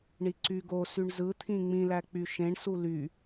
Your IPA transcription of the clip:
ɳ i ǀ y ɡ o s y ɳ z ɯ t̪ʰ ĩ ŋ͡m ĩ l æ k͡p y ʃ ẽ ɳ s u l y

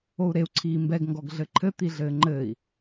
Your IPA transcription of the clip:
o u̯ ɾ e u̯ ǀʰ iː m b ɛ ɡ ŋ ɡ ɔ ɡ ɮ ɘ ǃʰ ɘ t̪ i ɮ ɘː ŋ͡ǃ ɘː i̯

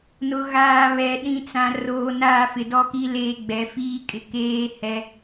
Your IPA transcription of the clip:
n ʊ˨ ɣ aː˨ β ɛ˨ ɗ ĩ˦ t͡s ã˨ r oː˨ n aː˦˨ f ɪ˨ d ɔ˦ k i˦ l eː˦ ɡ͡b ɛ˨˦ f iː˦ kʼ ɪ˨ k eː˦ h ɛ˦

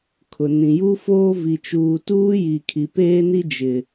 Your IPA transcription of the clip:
kʰ ʊ˨ n ĩ˨ j u˦ f oː˦ v i˨ t͡ʃ uː˨ t uː˦ j i˨ kʰ i˨ p eː˦ n i˦ d͡ʒ ɪ˨

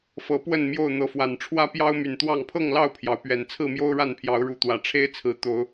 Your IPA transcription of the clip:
f ɤ˨˦ p w ə˥˨ n m j o˥˨ ʊ̯ n̪ ɤ˨˦ f w a˨˩ n ʈ͡ʂʰ w ä˦ p j ɑ˦ ʊ̯ m y˨˩ n t̪ w ɑ˥˨ ŋ pʰ ɤ˥˨ ŋ l ɑ˥˨ ʊ̯ pʰ j ɑ˩ ʊ̯ p ɥ ɛ˨˩ n t͡sʰ ɹ̩˥˨ m j o˦ ʊ̯ ɻ a˥˨ n pʰ j ɑ˨˦ ʊ̯ ɻ u˨˦ t̪ w ä˨˩ ʈ͡ʂʰ e˦ ɪ̯ t͡sʰ ɹ̩˨˦ t̪ o˨˦ ʊ̯

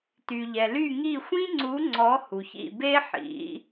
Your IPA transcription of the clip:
t y˩ ʎ ɛ˩ l y˦˨ ŋ i˦˨ xʷ ĩ˥ ŋ͡ǀ u˨˦ ŋ͡ǀ ɔ˨˦ h u˩ ç ḭ˦˨ b e˥ ħ ḭ˨˦

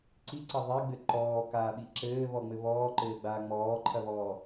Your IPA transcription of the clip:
ǀ i ǀ ɐ ðˤ i ɡ͡b ɘ ǃ ɔː k aː ɓ i ǁ ɘː β ɔ ŋ͡m ɘ β ɔː ǃ ɘː ɡ͡b aː ŋ͡m ɔː ǃʰ ɐ β ɔː

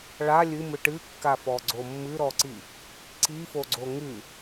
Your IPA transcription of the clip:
ɭ a lʲ ɨ m ɨ ʈ ɨ kː a f ɔ ɡ͡ǀ o mː ɨ ɾ ɔ ǀ i | ǀ i f o ɡ͡ǀ o ŋ ɨ

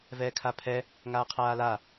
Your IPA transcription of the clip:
v ɛː kʰ a pʰ ɛ | ŋ aː qʰ aː l a

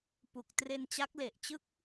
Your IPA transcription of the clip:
p u˨˩ k̚ t r e˧ n t͡ɕ a˦˥ k̚ l e˨˩ ʔ t͡ɕ ɯ˥˩ k̚

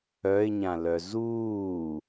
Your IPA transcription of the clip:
œ ɪ̯ ɲ ã l œ z uː

